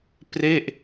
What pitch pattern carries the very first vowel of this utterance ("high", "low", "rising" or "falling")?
falling